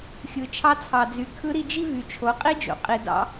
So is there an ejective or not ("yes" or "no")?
yes